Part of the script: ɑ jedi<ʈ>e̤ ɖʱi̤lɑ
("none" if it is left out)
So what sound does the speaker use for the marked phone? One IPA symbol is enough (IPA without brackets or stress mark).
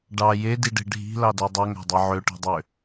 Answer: ɖ